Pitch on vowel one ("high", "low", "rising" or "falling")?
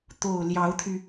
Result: low